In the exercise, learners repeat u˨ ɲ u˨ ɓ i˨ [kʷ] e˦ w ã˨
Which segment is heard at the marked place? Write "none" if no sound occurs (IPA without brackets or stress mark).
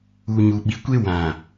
kʷ